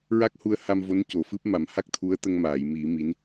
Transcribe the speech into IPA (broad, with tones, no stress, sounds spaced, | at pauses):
ɹ a˦˥ k̚ h u˧ ə̯ h a˧ m v o˧˥ n c o˨˩˨ f ɨ˦˥ p̚ m a˨˩˦ m h a˦˥ k̚ t̪ʰ u˧˥ ə̯ t̪ ə˧ ŋ m aː˨˩˨ j m i˨˩˦ m i˧˥ n